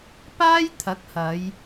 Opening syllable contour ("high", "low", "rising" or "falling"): high